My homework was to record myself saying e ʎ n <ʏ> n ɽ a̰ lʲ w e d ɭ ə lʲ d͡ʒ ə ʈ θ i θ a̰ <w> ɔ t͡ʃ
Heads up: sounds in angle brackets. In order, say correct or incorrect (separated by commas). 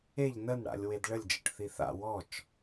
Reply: incorrect, correct